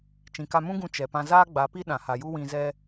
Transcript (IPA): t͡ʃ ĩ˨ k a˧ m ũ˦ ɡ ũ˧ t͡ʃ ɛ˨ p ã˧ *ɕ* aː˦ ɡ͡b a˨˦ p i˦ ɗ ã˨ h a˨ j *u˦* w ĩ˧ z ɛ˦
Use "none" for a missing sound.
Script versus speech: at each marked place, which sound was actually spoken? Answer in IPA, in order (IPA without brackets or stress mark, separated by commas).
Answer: z, u˦